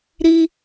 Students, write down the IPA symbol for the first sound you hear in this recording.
ɾ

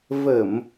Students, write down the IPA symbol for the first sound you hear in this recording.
v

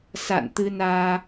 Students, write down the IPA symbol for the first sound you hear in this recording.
s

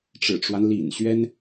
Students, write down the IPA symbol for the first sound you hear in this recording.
ʈ͡ʂ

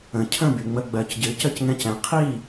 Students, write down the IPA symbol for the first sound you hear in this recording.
ə̃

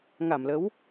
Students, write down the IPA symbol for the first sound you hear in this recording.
ŋ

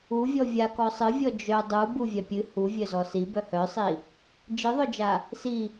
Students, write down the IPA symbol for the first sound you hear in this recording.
u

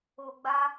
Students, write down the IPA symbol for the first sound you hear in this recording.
o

